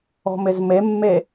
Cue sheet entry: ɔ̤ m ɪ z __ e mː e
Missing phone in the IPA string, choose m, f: m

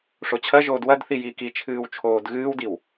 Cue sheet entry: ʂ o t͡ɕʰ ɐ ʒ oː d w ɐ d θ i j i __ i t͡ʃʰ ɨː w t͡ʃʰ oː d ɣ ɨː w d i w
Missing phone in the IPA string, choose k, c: k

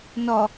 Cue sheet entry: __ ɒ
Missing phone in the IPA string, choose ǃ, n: n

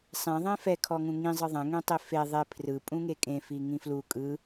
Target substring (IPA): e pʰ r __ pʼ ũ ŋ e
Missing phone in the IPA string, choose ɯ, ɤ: ɯ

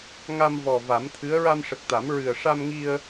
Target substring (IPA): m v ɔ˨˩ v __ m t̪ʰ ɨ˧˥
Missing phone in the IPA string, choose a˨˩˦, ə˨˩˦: a˨˩˦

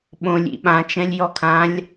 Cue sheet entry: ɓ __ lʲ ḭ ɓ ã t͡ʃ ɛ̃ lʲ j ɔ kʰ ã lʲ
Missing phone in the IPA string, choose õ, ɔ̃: õ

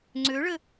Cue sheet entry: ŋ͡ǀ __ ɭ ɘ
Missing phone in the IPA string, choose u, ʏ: ʏ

